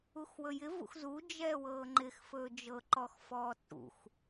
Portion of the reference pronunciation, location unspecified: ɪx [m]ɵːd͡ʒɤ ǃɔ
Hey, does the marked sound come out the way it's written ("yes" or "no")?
no